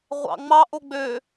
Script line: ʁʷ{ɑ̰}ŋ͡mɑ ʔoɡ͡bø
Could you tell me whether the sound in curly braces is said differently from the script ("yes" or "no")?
no